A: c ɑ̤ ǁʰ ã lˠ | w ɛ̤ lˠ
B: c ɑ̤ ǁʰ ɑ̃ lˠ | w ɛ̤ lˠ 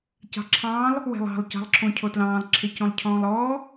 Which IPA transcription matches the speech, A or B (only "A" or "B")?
B